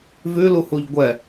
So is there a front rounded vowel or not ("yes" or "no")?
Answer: no